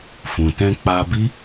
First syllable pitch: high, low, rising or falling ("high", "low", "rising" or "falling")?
low